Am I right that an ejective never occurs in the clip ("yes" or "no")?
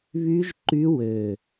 yes